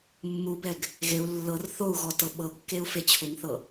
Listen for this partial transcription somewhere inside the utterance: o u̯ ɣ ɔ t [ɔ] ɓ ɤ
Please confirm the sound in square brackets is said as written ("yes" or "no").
no